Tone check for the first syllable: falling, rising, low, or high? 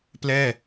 falling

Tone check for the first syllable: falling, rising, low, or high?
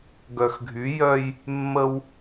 low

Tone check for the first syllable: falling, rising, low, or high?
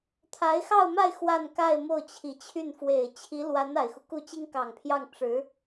rising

